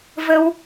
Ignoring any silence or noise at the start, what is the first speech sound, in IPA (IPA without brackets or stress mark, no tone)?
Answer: v